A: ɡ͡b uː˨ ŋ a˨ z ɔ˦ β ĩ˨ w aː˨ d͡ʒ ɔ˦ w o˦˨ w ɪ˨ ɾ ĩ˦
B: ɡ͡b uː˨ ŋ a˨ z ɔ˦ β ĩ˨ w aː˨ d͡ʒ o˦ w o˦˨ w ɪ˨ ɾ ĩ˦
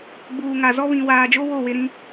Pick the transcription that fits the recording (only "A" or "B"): B